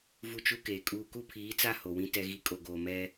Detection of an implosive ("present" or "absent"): absent